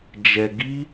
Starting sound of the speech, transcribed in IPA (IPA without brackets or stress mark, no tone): d͡ʒ